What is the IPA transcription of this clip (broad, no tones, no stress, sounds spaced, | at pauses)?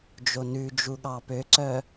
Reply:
d͡ʒ o n ʉ d͡ʒ u ɠ ɑ p ø ǀ œ